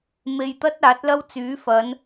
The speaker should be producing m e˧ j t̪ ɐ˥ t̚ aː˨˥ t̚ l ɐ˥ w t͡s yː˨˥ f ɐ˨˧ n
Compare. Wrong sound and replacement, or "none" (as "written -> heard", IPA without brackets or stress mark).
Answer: none